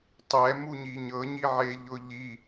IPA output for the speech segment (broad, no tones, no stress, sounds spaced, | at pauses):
tˤ ɛ m u ɲ i ɲ ɤ ɲ i ʕ e ʎ ʊ ʎ i